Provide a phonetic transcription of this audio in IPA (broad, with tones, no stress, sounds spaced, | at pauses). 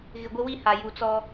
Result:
ɣ ɪ˨ ɡʷ ɪ˦ w i˦ h a˨ j u˨ t͡s ɔ˦